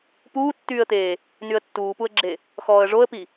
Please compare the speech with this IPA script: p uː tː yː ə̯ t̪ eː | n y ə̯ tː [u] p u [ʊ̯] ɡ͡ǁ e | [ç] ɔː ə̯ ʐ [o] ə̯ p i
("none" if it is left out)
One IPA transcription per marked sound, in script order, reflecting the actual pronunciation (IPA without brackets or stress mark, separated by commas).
uː, ə̯, x, o